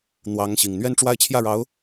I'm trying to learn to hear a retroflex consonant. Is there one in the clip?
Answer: yes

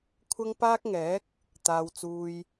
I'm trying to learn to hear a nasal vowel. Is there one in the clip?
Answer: no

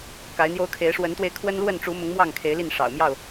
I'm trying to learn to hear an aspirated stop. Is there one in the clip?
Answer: yes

